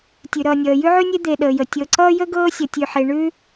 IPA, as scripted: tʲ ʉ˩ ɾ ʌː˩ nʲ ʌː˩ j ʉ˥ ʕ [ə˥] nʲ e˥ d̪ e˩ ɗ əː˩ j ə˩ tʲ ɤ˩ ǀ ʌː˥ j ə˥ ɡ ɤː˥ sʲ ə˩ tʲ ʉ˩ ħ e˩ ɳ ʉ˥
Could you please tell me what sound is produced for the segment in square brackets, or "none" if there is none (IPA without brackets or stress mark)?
ʉ˥